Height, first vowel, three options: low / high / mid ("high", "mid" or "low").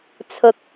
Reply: high